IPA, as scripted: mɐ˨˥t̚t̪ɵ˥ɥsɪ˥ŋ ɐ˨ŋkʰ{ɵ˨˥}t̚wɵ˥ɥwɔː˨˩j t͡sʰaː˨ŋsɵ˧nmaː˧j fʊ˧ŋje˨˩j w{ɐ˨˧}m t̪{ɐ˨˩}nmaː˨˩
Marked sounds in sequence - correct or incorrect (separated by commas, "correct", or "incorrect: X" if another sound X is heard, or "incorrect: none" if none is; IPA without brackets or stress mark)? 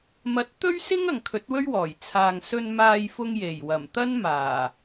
correct, incorrect: ɐ˨˩, incorrect: ɐ˥